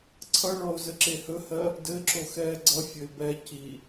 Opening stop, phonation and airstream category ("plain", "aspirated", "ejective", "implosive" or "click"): click